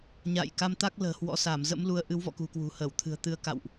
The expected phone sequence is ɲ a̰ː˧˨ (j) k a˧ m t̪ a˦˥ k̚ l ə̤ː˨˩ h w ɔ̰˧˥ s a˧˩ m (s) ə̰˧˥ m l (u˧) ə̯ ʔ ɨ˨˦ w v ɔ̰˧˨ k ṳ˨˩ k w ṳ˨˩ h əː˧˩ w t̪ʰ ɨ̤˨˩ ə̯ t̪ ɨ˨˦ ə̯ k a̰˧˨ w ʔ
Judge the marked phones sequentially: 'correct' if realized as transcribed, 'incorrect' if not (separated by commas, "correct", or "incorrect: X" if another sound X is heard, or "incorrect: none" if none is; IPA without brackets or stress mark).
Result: correct, incorrect: z, incorrect: u˨˦